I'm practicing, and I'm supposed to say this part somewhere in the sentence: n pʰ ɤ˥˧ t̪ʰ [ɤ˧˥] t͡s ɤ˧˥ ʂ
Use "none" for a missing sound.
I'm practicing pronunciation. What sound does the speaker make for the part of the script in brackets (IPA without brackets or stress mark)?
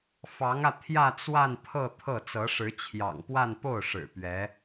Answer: ɤ˥˩